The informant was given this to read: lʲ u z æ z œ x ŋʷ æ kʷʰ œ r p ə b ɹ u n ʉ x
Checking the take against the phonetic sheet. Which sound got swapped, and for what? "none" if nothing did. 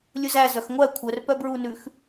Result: ə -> œ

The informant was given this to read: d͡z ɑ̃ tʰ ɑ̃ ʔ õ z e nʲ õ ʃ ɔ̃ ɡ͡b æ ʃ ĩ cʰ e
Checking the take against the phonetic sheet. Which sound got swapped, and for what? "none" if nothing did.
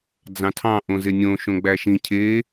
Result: ɔ̃ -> õ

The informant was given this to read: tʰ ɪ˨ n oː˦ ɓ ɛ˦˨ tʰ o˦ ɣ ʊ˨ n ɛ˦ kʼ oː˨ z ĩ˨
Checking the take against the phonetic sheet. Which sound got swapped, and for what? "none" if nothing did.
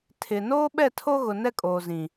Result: none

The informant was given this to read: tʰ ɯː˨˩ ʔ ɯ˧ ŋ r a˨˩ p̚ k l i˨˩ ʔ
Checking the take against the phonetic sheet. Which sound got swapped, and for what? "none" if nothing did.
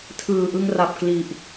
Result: none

